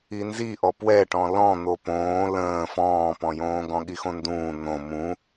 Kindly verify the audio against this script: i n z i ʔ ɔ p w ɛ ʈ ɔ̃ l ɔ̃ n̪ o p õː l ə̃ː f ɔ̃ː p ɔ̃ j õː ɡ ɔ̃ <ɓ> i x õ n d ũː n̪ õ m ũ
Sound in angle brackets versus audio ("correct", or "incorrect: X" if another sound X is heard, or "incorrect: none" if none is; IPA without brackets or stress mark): incorrect: ɠ